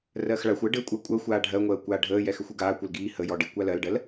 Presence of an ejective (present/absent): present